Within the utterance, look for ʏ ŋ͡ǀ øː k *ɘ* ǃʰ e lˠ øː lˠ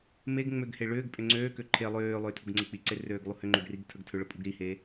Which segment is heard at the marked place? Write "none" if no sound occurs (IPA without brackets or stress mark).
ø